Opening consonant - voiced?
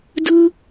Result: yes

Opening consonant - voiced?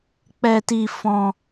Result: no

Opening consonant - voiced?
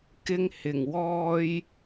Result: no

